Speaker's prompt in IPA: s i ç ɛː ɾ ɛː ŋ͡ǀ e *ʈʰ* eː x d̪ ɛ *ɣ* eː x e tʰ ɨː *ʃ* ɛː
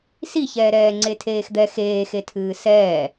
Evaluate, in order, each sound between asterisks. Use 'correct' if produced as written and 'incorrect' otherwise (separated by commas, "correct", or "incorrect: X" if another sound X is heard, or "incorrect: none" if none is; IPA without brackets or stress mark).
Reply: incorrect: tʰ, incorrect: x, incorrect: s